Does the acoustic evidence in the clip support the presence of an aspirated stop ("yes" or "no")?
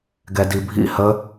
no